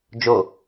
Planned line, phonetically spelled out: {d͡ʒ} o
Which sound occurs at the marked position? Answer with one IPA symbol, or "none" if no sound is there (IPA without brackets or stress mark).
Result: d͡ʒ